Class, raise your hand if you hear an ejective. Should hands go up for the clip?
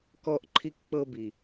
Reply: no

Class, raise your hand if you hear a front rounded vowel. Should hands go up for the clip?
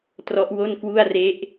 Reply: no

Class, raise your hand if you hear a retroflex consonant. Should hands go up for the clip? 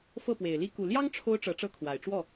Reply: yes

